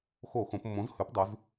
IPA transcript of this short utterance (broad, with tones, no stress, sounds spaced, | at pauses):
x o˧˩˧ x õ˩˧ p mː õ˩˥ z h ʉ˩˥ p dˤ ʉ˩˧ z